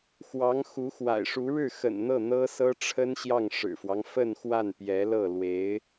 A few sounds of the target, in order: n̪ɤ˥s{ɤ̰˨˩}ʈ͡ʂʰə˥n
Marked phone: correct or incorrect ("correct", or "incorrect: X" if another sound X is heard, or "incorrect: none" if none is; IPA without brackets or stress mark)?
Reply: incorrect: ɤ˥